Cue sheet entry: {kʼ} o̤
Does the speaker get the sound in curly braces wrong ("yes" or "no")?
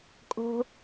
no